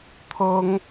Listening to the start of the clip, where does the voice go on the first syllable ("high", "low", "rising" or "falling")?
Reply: high